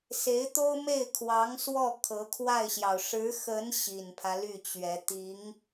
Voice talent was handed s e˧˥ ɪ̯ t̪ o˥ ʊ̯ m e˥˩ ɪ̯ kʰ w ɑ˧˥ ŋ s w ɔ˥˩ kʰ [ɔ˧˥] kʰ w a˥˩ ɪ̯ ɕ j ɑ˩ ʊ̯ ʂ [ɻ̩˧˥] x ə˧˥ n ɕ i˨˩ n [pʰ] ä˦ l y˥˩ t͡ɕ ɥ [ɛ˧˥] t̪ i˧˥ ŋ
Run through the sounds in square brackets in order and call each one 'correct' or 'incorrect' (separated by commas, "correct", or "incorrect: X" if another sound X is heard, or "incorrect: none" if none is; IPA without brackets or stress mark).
incorrect: ɤ˧˥, correct, correct, correct